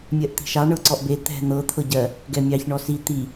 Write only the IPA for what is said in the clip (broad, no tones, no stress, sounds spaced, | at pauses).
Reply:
mʲ ɜ ʔ t̪ i̤ ʃ ɑ ɳ ɤ ǀ ɔ ʔ b e t̪ ɛ̤ n̪ ɤ t̪ʰ ɤ ɟ ɜ | ɡ ɛ mʲ ɑ ç ɳ ɔ s i t̪ i